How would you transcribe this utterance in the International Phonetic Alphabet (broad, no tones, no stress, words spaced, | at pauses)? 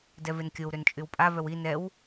dɛvenkʲow ɾønt͡ʃʼywpʼa vœwi nɛw